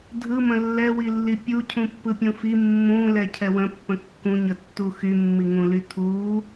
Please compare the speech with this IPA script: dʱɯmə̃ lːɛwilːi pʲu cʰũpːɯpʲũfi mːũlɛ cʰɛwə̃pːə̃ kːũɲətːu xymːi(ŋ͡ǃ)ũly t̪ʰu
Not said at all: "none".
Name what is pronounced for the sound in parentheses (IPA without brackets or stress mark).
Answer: ŋ